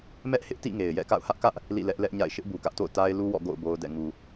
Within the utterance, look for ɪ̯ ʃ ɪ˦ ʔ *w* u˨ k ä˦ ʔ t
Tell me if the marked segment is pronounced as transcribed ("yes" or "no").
no